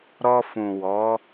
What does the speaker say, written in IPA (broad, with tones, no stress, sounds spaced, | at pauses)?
ɾ ɔ˧ f ũ˨ w ɔ˨˦